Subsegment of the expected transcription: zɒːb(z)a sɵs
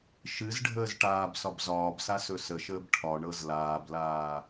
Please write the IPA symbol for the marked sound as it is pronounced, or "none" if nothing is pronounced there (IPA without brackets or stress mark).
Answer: s